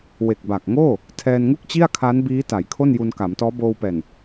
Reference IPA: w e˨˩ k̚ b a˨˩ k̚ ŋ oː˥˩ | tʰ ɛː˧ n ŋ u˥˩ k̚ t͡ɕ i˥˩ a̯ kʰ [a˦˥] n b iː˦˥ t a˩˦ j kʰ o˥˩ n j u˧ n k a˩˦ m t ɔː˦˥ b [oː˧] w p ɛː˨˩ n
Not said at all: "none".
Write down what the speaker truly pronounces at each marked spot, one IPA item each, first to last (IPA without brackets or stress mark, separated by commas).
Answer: a˦˥, oː˧